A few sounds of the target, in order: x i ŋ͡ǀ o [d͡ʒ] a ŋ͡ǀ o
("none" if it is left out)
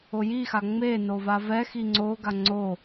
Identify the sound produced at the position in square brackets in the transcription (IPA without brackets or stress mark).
ɡ